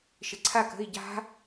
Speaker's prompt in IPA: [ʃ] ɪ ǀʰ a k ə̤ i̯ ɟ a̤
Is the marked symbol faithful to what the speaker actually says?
yes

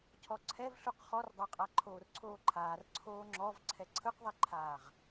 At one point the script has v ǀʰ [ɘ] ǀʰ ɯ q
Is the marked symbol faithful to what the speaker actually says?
no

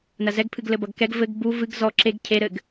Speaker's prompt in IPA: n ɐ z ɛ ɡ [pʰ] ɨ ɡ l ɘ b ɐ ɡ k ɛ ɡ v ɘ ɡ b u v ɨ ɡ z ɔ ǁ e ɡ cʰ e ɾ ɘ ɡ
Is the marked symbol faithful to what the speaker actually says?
yes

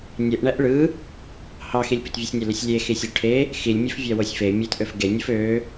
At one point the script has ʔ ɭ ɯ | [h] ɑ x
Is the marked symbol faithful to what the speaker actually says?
yes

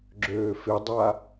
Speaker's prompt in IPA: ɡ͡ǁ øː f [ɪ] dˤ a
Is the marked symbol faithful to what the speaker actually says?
yes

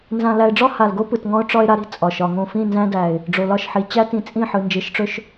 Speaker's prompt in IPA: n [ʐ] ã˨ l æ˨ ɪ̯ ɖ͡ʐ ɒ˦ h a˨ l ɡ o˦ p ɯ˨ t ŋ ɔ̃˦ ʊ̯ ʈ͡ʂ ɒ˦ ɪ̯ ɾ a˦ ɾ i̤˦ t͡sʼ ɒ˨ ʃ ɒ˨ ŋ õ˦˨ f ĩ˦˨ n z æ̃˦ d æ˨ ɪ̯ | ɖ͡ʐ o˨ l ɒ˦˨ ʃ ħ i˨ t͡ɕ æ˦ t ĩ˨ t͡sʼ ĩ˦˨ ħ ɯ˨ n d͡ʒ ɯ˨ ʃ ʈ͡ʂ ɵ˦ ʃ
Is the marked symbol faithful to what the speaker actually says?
no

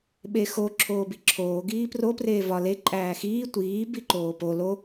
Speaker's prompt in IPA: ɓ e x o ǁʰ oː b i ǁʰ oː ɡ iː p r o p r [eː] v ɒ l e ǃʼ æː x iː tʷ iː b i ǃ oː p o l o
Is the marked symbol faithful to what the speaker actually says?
yes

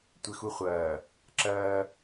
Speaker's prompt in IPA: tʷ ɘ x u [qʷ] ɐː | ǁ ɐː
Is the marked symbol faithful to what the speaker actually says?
no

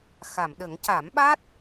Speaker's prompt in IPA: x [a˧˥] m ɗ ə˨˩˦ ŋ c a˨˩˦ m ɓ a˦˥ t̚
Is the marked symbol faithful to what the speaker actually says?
no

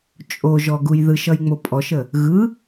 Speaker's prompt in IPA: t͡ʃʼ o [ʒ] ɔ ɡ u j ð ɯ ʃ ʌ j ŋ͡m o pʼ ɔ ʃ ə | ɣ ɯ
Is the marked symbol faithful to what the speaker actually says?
yes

